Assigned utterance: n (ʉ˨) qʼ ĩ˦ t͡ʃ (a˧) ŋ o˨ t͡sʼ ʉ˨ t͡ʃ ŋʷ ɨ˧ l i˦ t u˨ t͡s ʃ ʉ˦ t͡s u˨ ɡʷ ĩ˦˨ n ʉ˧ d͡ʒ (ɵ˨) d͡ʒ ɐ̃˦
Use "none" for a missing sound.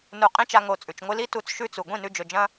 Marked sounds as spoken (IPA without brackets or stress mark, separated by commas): u˨, a˧, ɵ˨